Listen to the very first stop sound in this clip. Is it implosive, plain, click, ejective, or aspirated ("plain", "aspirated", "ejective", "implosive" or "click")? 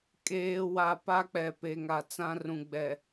ejective